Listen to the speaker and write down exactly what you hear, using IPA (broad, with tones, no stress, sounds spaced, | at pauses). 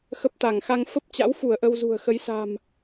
x ə˦˥ p̚ t̪ a˧˩ ŋ x a˧ ŋ f ə˦˥ p̚ t͡ɕ a̰˧˥ w f u˧˩ ə̯ ʔ ə˧ w z ṳ˨˩ ə̯ x ə˨˦ j s a̤˨˩ m